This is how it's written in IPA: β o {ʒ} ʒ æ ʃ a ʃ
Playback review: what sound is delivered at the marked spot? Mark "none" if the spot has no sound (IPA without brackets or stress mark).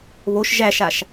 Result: ʃ